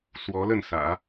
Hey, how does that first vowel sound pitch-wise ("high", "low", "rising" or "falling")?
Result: rising